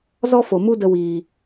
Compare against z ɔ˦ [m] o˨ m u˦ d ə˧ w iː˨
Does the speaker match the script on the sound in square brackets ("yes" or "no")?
no